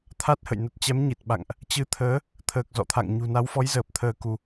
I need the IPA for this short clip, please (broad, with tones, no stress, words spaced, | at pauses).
t̪ʰa˦˥t̚hə̰˧˨j nə˨˩t̚ t͡ɕɛ˨˦mɲi˨˩t̚ɓa̰˧˨ŋʔ | t͡ɕɨ˨˦t̪ʰəː˨˦ | t̪ʰəː˨˩k̚zɔ̰˧˨t̪ʰa̰˧˨ŋ ɲṳ˨˩na˨˦wfɔ˨˦jzəː˨˩p̚ t̪ʰəː˧ku˧